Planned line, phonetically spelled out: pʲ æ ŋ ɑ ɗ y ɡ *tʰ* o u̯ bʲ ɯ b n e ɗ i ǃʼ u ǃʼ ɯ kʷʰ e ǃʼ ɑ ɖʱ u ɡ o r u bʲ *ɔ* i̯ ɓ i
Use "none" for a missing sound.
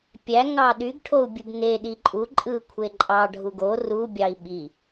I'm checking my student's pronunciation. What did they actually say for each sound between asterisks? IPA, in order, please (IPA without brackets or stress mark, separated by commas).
ʈʰ, ɑ